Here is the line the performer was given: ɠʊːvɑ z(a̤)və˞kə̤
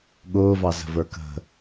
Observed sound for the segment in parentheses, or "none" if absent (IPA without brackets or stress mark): ə̤